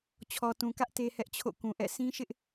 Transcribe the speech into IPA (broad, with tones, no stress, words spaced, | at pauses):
t͡ɕʰɔ˨tũ˨ kä˦ʔ te˦hɛ˦ʔt͡ɕʰo̰˦˨ kũ˨ʔɛ̰˦˨ sʰĩ˦ʃɪ˦ʔ